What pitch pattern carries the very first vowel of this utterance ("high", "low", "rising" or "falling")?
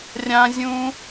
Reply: high